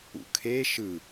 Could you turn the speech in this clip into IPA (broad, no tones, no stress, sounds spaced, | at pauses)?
ṵ kʰ e ʃ ɯ